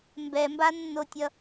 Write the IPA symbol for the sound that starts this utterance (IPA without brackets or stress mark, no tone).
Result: m